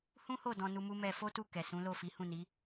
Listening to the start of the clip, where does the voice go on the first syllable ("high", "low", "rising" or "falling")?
high